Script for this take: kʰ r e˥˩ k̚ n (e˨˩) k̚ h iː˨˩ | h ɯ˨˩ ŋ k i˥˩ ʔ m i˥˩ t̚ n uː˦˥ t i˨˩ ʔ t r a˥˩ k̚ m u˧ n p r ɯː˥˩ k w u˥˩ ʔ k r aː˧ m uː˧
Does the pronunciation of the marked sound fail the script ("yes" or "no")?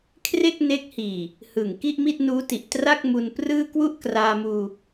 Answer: yes